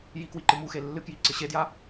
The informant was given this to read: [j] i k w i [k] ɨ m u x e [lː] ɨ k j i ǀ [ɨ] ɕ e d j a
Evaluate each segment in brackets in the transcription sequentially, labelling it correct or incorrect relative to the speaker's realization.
correct, incorrect, correct, correct

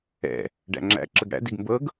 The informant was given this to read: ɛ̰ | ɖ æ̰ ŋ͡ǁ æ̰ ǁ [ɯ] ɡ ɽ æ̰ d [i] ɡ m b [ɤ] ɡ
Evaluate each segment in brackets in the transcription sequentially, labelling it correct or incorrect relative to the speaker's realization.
incorrect, correct, correct

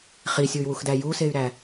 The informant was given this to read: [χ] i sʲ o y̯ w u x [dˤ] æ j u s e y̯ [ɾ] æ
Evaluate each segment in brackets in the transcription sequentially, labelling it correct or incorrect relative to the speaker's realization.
correct, incorrect, correct

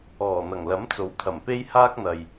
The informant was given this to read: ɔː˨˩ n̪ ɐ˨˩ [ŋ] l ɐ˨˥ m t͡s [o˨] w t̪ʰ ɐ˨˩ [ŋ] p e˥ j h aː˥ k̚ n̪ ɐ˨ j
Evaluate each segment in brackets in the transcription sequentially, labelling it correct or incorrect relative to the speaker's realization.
correct, incorrect, incorrect

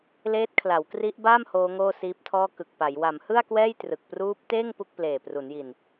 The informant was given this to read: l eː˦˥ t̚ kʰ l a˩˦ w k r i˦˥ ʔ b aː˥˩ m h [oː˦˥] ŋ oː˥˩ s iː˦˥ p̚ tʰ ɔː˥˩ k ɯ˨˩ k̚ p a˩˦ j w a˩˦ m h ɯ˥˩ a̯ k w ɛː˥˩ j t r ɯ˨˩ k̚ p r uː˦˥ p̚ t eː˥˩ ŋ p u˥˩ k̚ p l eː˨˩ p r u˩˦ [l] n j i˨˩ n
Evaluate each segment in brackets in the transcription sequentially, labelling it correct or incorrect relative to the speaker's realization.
correct, incorrect

